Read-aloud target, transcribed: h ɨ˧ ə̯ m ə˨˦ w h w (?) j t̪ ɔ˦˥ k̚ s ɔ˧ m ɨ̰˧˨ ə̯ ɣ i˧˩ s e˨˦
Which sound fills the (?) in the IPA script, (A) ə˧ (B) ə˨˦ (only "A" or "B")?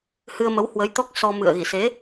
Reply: B